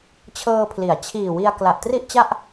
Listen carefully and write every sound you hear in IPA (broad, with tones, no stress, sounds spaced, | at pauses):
t͡ɕʰ ɤː˧ pʰ l i˩˦ a̯ t͡ɕʰ iː˨˩ w i˧ a̯ k l a˨˩ ʔ t r i˥˩ ʔ t͡ɕ a˥˩ ʔ